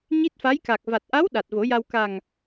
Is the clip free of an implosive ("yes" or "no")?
no